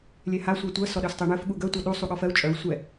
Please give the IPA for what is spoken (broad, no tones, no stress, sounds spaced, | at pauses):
lʲ ɛ h a sʷ ɜ tʷ ɜ s ɔ ɗ œ s tˤ e ɳ œ f ɠ u ɡ œ tʷ a ɗ u sˤ u ɠ ɔ f ɜ u̯ t͡ʃʼ œ u̯ sʷ ɛ